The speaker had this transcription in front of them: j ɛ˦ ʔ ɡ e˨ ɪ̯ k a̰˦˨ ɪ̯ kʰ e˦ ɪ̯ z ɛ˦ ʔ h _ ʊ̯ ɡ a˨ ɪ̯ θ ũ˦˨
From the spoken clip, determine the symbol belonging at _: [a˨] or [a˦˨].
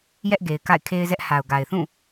a˨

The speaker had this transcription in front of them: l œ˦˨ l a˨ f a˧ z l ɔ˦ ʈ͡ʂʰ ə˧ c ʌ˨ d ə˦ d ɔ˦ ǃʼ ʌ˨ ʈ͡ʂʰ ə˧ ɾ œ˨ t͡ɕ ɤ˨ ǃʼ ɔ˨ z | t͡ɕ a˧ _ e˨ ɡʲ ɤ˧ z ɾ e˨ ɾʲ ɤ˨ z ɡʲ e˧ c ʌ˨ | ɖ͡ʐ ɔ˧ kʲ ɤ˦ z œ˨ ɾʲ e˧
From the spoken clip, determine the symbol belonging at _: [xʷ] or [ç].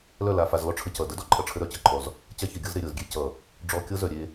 ç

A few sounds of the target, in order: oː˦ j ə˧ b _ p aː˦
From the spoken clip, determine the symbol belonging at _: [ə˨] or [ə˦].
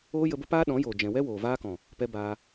ə˦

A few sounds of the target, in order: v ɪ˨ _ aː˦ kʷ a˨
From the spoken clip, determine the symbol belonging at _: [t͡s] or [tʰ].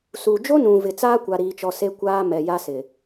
t͡s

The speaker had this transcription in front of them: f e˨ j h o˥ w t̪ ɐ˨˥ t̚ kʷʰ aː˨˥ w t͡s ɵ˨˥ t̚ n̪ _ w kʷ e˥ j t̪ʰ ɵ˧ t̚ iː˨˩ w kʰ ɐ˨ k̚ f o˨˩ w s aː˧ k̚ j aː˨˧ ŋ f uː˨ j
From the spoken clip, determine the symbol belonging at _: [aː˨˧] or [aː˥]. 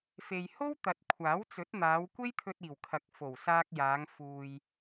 aː˨˧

